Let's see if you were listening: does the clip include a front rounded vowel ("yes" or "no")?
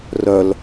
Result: yes